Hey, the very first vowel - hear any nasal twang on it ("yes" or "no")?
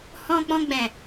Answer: yes